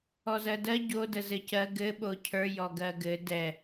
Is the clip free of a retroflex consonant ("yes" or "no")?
yes